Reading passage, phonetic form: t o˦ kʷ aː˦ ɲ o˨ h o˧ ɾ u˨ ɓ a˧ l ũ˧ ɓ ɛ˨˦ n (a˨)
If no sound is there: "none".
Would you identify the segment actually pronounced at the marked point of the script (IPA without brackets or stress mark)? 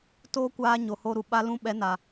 a˨